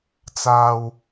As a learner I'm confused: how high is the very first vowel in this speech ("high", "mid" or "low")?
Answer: low